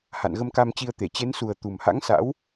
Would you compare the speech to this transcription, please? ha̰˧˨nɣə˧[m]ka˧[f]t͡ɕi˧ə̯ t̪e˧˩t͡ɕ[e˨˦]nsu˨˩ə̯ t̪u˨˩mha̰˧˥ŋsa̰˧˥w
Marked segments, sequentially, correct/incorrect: correct, incorrect, correct

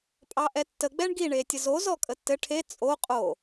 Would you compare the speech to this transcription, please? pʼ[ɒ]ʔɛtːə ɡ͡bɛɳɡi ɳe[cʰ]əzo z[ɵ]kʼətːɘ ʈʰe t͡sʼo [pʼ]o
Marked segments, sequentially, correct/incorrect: incorrect, incorrect, incorrect, incorrect

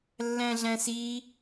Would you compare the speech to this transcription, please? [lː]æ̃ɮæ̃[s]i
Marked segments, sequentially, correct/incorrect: correct, correct

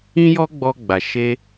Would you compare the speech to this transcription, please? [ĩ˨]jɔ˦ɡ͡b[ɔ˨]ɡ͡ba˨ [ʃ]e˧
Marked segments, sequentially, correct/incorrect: incorrect, incorrect, correct

